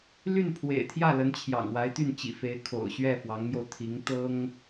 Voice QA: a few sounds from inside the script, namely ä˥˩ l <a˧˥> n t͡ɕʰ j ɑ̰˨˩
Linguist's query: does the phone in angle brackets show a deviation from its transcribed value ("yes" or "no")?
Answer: yes